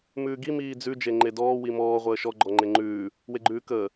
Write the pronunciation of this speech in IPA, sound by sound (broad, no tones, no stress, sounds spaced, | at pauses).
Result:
m ʉː ɡ i m iː d͡z ʉ d͡ʒ e ŋ͡ǃ e d ɔː w i m ɔː ʁʷ əː ʃ ɔ ɡ͡ǃ ɔ ŋ͡ǃ e ŋ͡ǃ ʉː | w e ɡ͡ǃ ʉː k əː